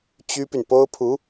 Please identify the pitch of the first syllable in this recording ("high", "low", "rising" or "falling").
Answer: high